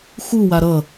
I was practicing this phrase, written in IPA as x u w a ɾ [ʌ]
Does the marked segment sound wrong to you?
no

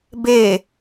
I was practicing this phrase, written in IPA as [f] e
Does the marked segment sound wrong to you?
yes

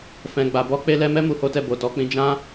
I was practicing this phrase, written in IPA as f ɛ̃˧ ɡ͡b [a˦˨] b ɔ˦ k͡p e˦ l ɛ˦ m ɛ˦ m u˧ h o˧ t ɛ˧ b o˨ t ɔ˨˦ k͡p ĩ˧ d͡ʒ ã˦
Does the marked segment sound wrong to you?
yes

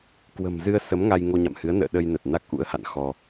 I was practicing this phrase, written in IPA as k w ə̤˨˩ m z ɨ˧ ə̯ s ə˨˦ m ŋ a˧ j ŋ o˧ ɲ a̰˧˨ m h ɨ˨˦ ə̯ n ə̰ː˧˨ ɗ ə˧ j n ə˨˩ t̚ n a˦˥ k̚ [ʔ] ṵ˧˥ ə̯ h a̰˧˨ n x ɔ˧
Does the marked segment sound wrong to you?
no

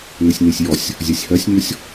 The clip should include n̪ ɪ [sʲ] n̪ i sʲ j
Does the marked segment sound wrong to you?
no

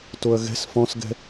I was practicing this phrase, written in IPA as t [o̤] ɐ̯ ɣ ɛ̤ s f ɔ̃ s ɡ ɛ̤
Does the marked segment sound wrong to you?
yes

